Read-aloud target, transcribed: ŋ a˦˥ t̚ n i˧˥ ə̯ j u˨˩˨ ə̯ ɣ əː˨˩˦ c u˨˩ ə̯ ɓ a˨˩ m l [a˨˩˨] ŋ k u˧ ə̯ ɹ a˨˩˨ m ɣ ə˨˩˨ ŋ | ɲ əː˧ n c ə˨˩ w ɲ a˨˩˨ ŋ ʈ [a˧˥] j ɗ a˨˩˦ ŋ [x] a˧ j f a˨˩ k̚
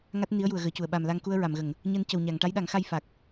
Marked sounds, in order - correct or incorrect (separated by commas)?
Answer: incorrect, correct, correct